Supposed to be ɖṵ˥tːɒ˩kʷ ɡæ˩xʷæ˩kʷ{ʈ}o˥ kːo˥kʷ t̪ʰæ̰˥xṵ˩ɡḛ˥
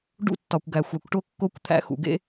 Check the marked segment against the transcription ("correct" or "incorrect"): correct